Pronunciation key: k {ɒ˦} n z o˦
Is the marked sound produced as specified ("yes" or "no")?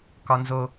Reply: yes